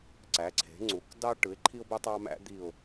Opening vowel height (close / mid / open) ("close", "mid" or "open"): open